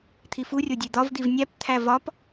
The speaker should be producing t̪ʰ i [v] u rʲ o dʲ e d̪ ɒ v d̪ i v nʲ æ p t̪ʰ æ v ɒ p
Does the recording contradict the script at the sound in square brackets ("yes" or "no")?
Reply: yes